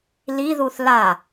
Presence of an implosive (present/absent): absent